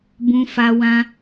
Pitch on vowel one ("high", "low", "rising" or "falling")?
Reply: high